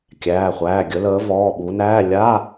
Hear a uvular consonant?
yes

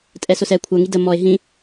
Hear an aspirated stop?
yes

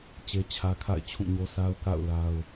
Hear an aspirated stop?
yes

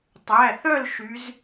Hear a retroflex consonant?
no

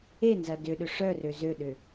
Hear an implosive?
yes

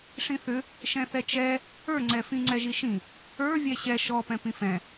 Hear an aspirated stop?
no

